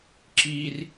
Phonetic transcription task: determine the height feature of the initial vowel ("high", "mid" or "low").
high